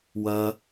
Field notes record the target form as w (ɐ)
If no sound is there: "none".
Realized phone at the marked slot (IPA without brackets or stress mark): ɐ